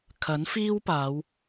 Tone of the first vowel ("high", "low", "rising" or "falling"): rising